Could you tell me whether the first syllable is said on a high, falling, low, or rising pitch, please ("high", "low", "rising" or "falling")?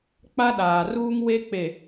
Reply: high